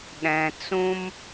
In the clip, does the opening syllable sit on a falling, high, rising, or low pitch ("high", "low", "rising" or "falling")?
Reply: low